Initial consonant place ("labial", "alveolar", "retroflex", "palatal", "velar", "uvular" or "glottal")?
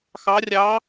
velar